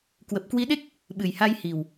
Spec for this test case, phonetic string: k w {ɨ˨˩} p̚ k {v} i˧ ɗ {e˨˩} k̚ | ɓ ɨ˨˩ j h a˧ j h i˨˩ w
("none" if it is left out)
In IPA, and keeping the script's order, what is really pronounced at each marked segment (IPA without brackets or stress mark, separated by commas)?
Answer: ə˨˩, w, e˦˥